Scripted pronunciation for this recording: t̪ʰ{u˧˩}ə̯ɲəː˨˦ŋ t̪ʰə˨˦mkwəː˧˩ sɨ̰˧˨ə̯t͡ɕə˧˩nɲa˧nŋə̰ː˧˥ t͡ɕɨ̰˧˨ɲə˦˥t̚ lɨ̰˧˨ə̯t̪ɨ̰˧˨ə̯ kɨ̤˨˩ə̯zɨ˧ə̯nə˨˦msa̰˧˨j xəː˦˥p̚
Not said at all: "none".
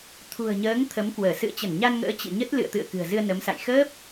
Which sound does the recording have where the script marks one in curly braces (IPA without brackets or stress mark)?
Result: ṳ˨˩